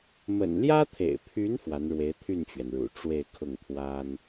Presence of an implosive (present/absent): absent